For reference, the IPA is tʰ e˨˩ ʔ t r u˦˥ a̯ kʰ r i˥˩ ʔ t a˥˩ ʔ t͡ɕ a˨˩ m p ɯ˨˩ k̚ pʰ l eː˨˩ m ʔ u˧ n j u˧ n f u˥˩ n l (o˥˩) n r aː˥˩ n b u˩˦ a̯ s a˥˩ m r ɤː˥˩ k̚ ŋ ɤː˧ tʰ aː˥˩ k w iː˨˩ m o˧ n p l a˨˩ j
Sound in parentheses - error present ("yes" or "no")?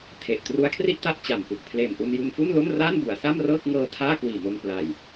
no